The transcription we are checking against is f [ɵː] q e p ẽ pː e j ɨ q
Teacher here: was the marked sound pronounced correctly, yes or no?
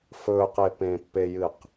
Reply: yes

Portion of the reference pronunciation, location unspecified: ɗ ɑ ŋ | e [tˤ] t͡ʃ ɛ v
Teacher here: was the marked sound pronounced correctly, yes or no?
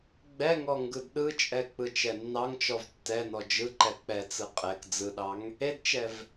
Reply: no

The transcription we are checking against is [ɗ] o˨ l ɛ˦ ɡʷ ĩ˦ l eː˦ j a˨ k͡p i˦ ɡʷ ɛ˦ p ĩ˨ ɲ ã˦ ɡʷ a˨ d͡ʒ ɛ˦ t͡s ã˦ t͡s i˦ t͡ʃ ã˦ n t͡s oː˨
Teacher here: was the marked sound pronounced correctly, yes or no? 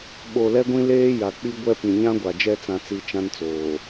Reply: no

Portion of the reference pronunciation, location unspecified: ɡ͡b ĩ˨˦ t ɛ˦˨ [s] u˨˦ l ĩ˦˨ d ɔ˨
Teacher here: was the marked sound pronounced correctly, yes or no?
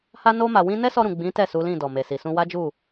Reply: yes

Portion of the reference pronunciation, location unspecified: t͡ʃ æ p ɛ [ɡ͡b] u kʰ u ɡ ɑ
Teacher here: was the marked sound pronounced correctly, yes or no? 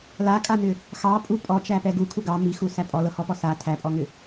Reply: no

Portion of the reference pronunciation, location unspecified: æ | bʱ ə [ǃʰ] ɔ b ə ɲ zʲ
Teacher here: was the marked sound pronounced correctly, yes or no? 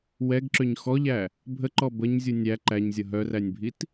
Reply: no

